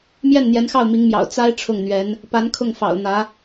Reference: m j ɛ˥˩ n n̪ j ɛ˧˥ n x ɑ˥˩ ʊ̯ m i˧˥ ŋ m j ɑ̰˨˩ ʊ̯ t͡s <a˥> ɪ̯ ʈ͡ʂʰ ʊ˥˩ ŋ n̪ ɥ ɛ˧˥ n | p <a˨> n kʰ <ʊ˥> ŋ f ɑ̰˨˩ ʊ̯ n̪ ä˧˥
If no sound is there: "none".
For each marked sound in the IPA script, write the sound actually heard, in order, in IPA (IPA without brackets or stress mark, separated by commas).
a˥, a˧˥, ʊ˥˩